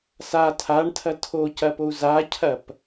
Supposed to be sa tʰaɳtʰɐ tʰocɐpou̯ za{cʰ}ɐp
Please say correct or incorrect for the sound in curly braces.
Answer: correct